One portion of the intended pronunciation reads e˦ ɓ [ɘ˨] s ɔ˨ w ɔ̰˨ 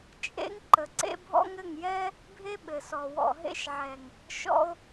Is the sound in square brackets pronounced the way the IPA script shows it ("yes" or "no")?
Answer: yes